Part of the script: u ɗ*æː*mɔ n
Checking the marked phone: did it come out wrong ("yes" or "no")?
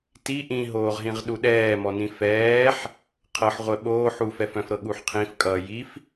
yes